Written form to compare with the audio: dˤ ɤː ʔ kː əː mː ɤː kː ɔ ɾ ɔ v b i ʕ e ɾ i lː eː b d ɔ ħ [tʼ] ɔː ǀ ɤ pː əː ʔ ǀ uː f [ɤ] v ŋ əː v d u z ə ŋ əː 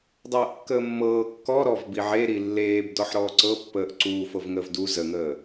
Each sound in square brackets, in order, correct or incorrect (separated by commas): incorrect, correct